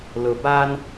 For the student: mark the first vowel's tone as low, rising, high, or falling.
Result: low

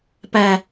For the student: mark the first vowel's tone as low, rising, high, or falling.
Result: low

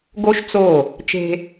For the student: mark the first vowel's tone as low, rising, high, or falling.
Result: high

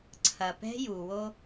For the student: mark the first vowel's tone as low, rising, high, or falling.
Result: low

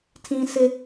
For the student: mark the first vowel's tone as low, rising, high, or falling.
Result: high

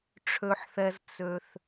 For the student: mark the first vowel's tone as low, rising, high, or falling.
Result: low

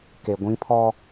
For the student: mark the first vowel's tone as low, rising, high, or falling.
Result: low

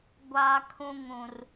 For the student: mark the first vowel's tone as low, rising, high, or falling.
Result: high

